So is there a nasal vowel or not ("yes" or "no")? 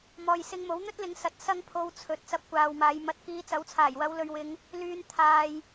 no